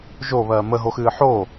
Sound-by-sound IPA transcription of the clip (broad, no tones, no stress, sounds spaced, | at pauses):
ʒ o β ɜː m ə ɦ o x ɨː ħ o